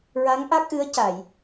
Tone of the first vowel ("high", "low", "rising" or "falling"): rising